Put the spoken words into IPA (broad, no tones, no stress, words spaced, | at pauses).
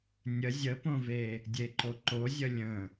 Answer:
nʲə zʲəpõve | dʲeǃoǃo zʲəlʲə̃